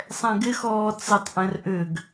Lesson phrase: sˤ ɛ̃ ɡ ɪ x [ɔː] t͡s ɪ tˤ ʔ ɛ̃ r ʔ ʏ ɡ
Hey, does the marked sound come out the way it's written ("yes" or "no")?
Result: yes